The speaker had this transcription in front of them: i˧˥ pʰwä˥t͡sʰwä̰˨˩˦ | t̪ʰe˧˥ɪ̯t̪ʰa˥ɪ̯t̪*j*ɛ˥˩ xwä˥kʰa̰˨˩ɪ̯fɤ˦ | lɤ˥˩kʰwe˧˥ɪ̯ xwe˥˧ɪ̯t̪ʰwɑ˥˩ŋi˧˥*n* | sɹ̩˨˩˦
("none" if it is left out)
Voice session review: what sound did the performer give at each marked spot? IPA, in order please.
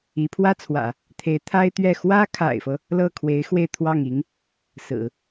ɥ, ŋ

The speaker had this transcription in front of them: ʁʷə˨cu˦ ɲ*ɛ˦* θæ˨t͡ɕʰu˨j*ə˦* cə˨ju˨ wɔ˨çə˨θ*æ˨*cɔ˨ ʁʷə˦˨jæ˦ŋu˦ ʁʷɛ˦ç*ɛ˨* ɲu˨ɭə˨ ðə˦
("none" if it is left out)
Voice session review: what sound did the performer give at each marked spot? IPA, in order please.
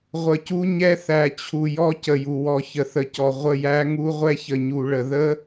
ɛ˦, ɔ˦, ə˨, ə˨

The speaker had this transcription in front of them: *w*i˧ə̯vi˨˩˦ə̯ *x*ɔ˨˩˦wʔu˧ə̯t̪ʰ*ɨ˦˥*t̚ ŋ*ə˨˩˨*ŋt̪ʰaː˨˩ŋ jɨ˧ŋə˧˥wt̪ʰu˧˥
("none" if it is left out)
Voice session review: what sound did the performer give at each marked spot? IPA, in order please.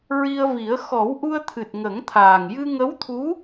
ɹ, x, ɨ˨˩, ə˨˩˦

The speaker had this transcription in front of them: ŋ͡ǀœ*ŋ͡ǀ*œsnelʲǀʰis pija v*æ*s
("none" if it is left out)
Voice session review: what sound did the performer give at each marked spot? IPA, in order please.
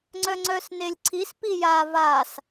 ŋ͡ǀ, a

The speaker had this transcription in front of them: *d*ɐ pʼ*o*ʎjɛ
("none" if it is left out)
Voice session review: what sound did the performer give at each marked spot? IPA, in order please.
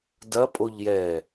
d, o

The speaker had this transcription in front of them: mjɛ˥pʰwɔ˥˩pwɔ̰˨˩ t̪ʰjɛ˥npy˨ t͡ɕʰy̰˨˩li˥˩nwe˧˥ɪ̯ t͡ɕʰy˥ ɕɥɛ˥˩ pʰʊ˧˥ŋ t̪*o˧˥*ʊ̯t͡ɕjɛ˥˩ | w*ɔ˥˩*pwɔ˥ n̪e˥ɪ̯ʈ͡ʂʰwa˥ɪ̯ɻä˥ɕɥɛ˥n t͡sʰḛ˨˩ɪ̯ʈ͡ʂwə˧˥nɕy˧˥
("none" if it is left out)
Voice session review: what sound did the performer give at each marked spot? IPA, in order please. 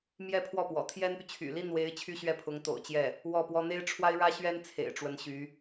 o̰˨˩, ɔ˥˩

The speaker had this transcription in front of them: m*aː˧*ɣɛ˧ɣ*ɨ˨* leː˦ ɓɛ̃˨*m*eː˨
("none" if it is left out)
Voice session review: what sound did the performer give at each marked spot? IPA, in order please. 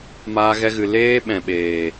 aː˧, ɨ˨, ɓ

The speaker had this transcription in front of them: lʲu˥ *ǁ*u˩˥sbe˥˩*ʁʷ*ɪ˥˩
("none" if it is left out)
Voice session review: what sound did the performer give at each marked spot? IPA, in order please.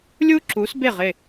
ǁ, ʁ

